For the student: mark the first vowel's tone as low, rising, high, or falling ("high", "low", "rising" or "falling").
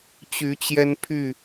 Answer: rising